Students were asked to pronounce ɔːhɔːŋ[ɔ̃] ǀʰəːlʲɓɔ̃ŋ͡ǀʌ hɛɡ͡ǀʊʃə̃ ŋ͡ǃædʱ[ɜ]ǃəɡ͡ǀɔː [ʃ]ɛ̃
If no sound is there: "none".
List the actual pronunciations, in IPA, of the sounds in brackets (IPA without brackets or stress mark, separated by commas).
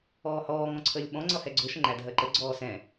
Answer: ɔ̃, ɜ, s